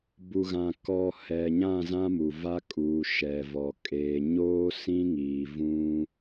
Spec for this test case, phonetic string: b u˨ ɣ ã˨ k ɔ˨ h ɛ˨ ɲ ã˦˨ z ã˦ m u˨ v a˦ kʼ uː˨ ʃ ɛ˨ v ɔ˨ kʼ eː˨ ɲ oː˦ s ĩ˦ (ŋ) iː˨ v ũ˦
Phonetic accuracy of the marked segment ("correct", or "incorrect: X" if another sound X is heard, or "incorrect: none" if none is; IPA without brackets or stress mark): correct